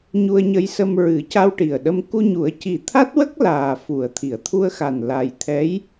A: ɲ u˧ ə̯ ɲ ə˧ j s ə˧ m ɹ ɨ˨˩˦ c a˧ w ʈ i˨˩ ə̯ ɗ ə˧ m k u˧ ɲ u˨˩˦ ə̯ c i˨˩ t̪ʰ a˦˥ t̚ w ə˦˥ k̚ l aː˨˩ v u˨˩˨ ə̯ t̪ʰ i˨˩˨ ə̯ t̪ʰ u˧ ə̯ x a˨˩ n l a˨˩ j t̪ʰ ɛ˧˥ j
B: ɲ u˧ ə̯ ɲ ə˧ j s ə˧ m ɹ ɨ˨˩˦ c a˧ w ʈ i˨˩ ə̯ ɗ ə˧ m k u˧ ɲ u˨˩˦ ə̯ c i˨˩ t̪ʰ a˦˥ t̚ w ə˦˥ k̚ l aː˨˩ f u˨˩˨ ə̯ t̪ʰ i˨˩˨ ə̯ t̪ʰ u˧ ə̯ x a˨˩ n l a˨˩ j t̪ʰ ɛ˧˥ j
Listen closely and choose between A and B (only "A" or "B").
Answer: B